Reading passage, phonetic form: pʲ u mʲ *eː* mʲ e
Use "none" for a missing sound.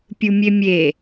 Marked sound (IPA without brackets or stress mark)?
e